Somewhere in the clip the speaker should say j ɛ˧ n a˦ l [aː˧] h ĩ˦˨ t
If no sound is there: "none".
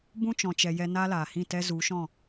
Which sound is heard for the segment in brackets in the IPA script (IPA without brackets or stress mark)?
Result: aː˨